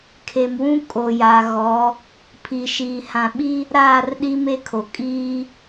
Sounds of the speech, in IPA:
kʰ e˨ m w ũ˦ kʼ o˨ j a˨ ɣ ɔ˨˦ | pʰ i˨ ʃ iː˨ h ã˨ ɓ i˦ | ɾ aː˦˨ r ɗ i˦ m e˦ kʰ o˨ kʼ iː˦

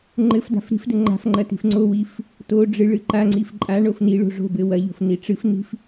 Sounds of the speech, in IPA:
ŋ͡ǃ ɘ f d a̤ f ɾ i̤ f d ɘ ŋ͡ǃ a̤ f ŋ͡ǃ ɐ t i̤ f ŋ͡ǀ o w i f | t o ɖ͡ʐ ɨ ɭ ɨ ǃ a ŋ͡ǀ i f ǃʼ a ɳ o f n i ɭ o̤ ʐ o̤ b ɘ w ɐ ʎ o̤ f n i ʈ͡ʂ ɨ f n i̤ f

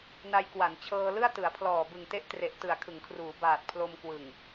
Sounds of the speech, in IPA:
n a˧ j k w a˩˦ n t͡ɕʰ ɤː˧ l ɯ˥˩ a̯ t ɯ˩˦ a̯ pʰ l ɔː˨˩ b ɯ˨˩ ŋ t e˦˥ ʔ t r e˨˩ ʔ t ɯ˨˩ a̯ kʰ ɯ˩˦ ŋ kʰ r uː˩˦ b aː˨˩ t̚ pʰ l o˧ m k w ɯ˨˩ ŋ

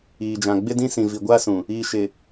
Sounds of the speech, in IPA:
iː˨ d͡ʒ ã˨ ɡ͡b ɪ˦ d ĩ˦ s ĩ˨ v i˨ ɡʷ aː˦ s ũ˨ | iː˨ ʃ ɪ˨

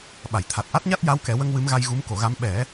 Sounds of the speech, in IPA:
ɓ a˨˩˨ j t̪ʰ a˨˩ t̚ ʔ a˦˥ t̚ ɲ a˦˥ t̚ j a˧˥ w k ɛ˨˩˦ w ə˧ ŋ w ɨ˧˥ m ɣ a˧ j ɣ u˧˥ m k o˨˩˦ ɣ a˧˥ m ɓ ɛ˨˩˦

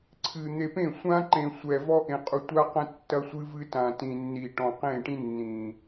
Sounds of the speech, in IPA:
ǀʰ ɨ˨ n̪ e˨ p ẽ˦˨ sʷ ã˦ ǃ ẽ˨ sʷ ɛ˨ v ɔ˦ ʔ ẽ˨ qʼ u˨ tʷ a˦ q ɐ̃˦ tː ɐ˦ sʷ ɨ˦ v ɨ˦ t ã˨ t ĩ˨ nː i˨ ʈ ɔ̃˨ q ẽ˦˨ ʈ ĩ˦ nː ĩ˨

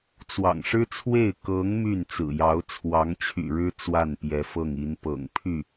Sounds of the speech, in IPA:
t͡s w ɑ̰˨˩ ŋ ʂ ɻ̩˥ t͡sʰ w e˥˩ ɪ̯ k ɤ˧˥ ŋ m y˥˩ n t͡s ɹ̩˨˩ j ɑ˧˥ ʊ̯ t͡sʰ w ɑ˧˥ ŋ t͡ɕʰ y̰˨˩ ɻ ɻ̩˥ t͡s w a˥˩ n p j ɛ˧˥ f ɤ˥˩ ŋ i˧˥ n p ɤ̰˨˩ ŋ pʰ y˥˩

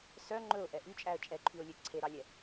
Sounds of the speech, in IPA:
s œ ŋ͡ǃ ɵ ʊ̯ ʔ ɛ ʔ y t͡ʃʼ æ ə̯ t͡ʃʼ ɛ ǃʰ y ʊ̯ lʲ ø ǀʰ e ɾ ɑ lʲ ɛ

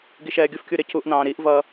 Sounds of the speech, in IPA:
ɡ i ʃ ɛː ɡʲ ʊ f kʲ u ɾ ɪ c u ʔ n ɑ̃ː ɾ i ʔ v ʌ

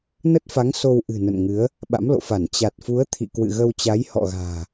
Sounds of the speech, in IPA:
n ə˦˥ t̚ f a˨˦ ŋ s o˧ w ʔ ɨ̤˨˩ n ə̰˧˨ n ŋ ɨ˨˦ ə̯ | ɓ a̰˧˥ m l o̰˧˨ f a˧˩ n t͡ɕ a˨˩ t̚ f u˨˦ ə̯ t̪ʰ ḭ˧˨ k w ɨ̰˧˨ ɣ ə˧ w t͡ɕ a˨˦ j h ɔ̰˧˨ ɣ a̤ː˨˩

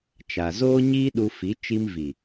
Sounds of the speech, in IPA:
t͡ʃ a˨ z oː˦ ɲ iː˦ ɗ u˧ f i˨˦ t͡ʃ i˧ m v i˨

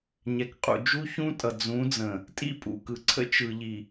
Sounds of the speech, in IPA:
ɲ ɛ˨ k qʼ ṵ˨ d͡ʒ u˦ ç ũ˦ tʼ ʌ˨ d͡z ũ˨˦ d͡z ə̃˨ | tʼ ḭ˦˨ pʼ ṵ˨ k ɯ˨ ǀʰ ə̰˦ t͡ʃ ɯ˨ ʎ i˨

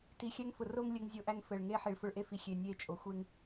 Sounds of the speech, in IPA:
t i˨ xʲ æ˦ ŋ f ʊ˨ r o˦ ŋ lʲ ɘ˦ ŋ zʲ o˦ ʔ æ˦ ŋ f ɘ˨ ɭ ŋ e˦ ħ i˨ ɭ f ʊ˦ ɭ ʔ e˦ f i˨ xʲ e˨ nʲ e˦˨ t͡ʃʼ o˨ xʷ e˦ ŋ

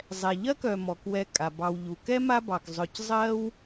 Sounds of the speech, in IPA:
zˤ ɛ˨ ʎ ɜ˥ k œ˨ m ɔ˩ k w ɛ˨ kʼ a˩ b ɑ˨ w ʎ u˩ k ɛ˥ m a˦ b ɑ˩ k zˤ œ˨ c zˤ ɜ˦ w

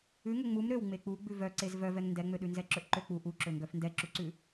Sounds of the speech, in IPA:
ʉ ŋ ɵ ŋ͡m u m ɾ ø w ŋ͡m e k͡p u ɡ͡b ʉ v œ ǀ e z v œ v ɛ ŋ n d ɛ ŋ͡m ø ɗ ʉ n z ɛ ǁ ɵ ʔ ǃ ø k͡p u ʔ u ǁ ɵ ŋ ɡ œ f n d ɛ ǁ u ǀ ʉ

